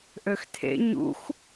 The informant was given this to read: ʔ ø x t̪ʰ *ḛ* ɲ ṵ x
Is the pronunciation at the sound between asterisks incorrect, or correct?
correct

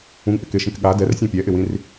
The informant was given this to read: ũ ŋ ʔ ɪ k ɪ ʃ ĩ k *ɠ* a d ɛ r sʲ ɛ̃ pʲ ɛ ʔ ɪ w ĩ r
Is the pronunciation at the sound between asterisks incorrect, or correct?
correct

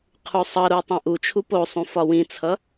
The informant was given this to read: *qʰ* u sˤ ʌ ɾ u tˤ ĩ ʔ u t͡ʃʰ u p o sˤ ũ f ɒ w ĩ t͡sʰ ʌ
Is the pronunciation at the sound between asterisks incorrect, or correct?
correct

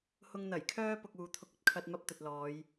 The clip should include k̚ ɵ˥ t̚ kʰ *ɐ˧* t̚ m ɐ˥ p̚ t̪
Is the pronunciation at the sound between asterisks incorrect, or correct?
correct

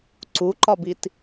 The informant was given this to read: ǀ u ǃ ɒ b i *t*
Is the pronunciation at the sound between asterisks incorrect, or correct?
correct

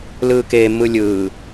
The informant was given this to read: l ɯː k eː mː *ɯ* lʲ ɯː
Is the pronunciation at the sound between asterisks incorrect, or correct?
correct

